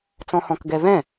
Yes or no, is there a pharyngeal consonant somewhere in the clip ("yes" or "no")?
no